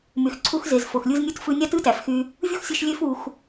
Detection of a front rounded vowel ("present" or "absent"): present